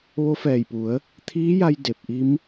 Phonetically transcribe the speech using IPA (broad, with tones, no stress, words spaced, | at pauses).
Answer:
ʋo˧˥fɛː˧˩jpu˩˧ə̯ | t̪ʰiː˧˥ja˧j de˧p̚ ʔi˧˥m